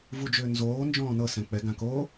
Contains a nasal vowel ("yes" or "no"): yes